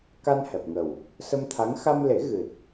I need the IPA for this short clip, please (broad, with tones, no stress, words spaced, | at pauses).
ka˧nhɛ˨˩p̚ŋə˨˩w | sə˧mt̪ʰa˧˥ŋ xa˧mle˨˩˦ ɣɨ˨˩t̚